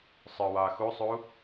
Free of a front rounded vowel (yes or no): no